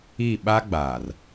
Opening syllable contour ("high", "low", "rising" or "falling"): falling